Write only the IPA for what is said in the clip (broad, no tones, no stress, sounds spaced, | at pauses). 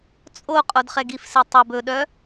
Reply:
t͡sʼ o qʼ o d χ ɛ ɡ i f s e tˤ ɵ b ɵ ɗ œ